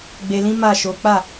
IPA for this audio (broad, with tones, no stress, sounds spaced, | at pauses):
ɡ͡b e˧ l ĩ˦ m a˦˨ ʃ o˨˦ k͡p a˦˨